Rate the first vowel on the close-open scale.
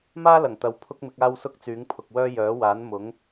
open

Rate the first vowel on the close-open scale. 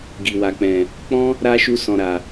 close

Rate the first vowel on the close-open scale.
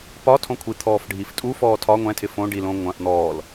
open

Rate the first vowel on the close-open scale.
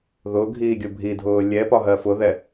close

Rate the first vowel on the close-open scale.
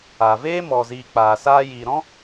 open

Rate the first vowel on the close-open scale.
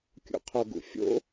close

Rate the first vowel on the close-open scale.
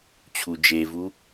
close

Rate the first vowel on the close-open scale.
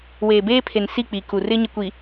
mid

